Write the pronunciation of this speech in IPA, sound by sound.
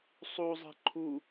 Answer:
sˤ u zˤ ɛ̤ ǃʰ u

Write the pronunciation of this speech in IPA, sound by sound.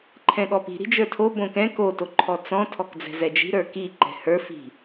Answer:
ǃʰ ɛ̃ ɠ ɔ p i̤ ɾ i̤ d͡ʒ ə˞ tʰ o b õ k ɛ̃ k o t o ǃʰ ɔ t͡s ɔ̃ tʰ ɔ k d͡z ɛ̤ z ɛ d͡ʒ i̤ ɾ ə˞ k i ǃ ɛ̤ h ə˞ f i̤

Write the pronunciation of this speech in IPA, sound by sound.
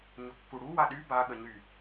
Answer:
ɲ ʊ kː u ɽ u w a ɗ y b a ɠ ə ɲ y

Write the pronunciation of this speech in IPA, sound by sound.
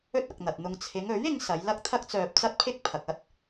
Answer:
ɵ˥ t̚ ɐ˨ k̚ n̪ ɐ˨ t̚ n̪ ʊ˧ ŋ t͡sʰ ɪ˨˧ ŋ ɵ˨˥ ɥ ɪ˨˧ ŋ s ɐ˨˧ j l ɐ˥ k̚ t̪ʰ ɐ˥ k̚ t͡s œː˧ p̚ t͡s ɐ˥ t̚ pʰ ɪ˥ k̚ pʰ ɐ˨ k̚ ɐ˥ t̚

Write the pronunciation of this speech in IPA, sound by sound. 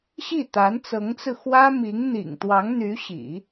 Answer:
ɕ i˥˩ t̪ a˧˥ n t͡s ɤ˧˥ ŋ t͡s ɹ̩˧ x w ä˥ m i˧˥ ŋ n̪ ḭ˨˩ ŋ t̪ w ɑ˧˥ ŋ n̪ y˧˥ ɕ ḭ˨˩˦

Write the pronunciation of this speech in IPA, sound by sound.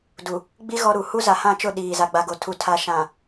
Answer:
d u˨ | ɡ͡b i˦ ɣ ɔ˦ ɾ u˨ h u˦ z a˨ h ã˦˨ t͡ʃ ʊ˦˨ ɗ iː˨ z a˨ ɡ͡b a˨ ɡ o˨ tʰ u˨ tʰ a˨ ʃ ã˨

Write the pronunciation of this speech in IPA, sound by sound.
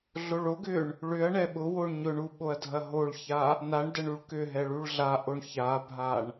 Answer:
ɮ o ɭ o ɡ ʏ ɳ | ɭ ʏ ɐ̯ ɳ ɛ ɓ ʊ w o ɳ ɲ ʊ ɳ u ɓ o ɐ̯ dʱ ɐ ɦ o ɭ ç a | n a ɳ d ɐ ɳ u ɭ k ʏ ɦ ɛ ɭ u ɭ ɮ a ʔ o ɳ ç a bʱ a ɳ

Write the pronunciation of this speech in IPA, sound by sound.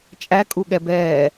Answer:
t͡ʃʼ æ kʼ u ɠ ɛ b ɛː

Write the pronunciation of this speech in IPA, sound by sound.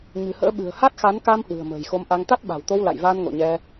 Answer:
ɲ ɨ̤˨˩ h ə̰ː˧˥ ɓ ɨ̤˨˩ ə̯ h a˦˥ t̚ x a˨˦ n k a˧ m h w ɨ̤˨˩ ə̯ m ə̤ː˨˩ j x o˨˦ m ʔ a˧ ŋ t̪ a˦˥ t̚ ɓ a̤˨˩ w t̪ o˧ w l a̰˧˨ j v aː˧ n ŋ o̰˧˨ ɲ ɛ˧

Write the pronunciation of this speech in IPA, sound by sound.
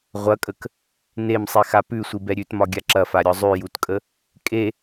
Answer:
ʁʷ ɐ kʼ ə k | n e m sˤ i x a p ʉ sʷ i b ɛ ɾʲ ʉ t m ɒ ɡʲ a ǁ ɐ f a ɾʲ ɒ zˤ ʉ j u t kʼ ə | kʼ e

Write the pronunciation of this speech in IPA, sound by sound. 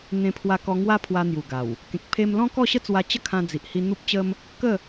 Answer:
n̪ ẽ˧ pʰ w a˧ k ɔ˧ ŋ w a˦ pʰ w a˧ n̪ j u˨˩ ɡ a˨˩ w | k ẽ˨ k̚ pʰ e˧ m l ɔ̃˦ k ɔ˥˧ ɕ ə˦ t͡s w a˧ t͡ɕ ə˥˧ kʰ ã˧ d͡z i˨ ʔ h i˧ n̪ u˦ p̚ t͡ɕ ə˦ m | k ə˥˧

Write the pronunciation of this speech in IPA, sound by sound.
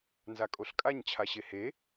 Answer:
n z a kʼ o ɬ kʼ a ɲ t͡ɕʰ a ɕ e h e

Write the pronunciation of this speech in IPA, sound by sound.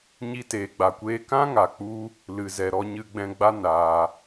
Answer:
ɲ i˧ t eː˨ ɡ͡b a˨ kʷ eː˧ k ã˦ ŋ a˨ k͡p u˧ | l ɨ˨ z ɛ˨ ɾ ɔ˧ ɲ ɨ˧ ɡ͡b ɛ̃˧ ɡ͡b a˦ n aː˧

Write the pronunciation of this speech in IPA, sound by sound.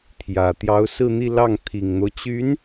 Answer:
t̪ʰ j ä˨˩ t̪ j ɑ˧˥ ʊ̯ s ɹ̩˥˧ n̪ i˥˧ l ɑ˥˩ ŋ t̪ʰ i˨˩ ŋ n̪ o˦ ʊ̯ t͡ɕ y˧˥ n

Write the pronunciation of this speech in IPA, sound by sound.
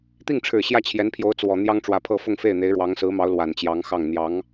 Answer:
t̪ i˥˩ ŋ ʈ͡ʂʰ ɻ̩˨˩ ɕ j ä˥˩ t͡ɕʰ j ɛ˧˥ n pʰ j o˧˥ ʊ̯ t͡s w ɔ˨˩ n̪ j ɑ˥ ŋ ʈ͡ʂ w ä˧˥ pʰ ɤ˥˧ f ʊ˥˧ ŋ f e˥˩ ɪ̯ n̪ e˧˥ ɪ̯ ɻ w ɑ˧˥ ŋ s ɹ̩˧˥ m ɑ˧˥ ʊ̯ l w a˨˩ n t͡ɕ j ɑ˧˥ ŋ x ɑ˥˩ ŋ n̪ j ɑ˧˥ ŋ

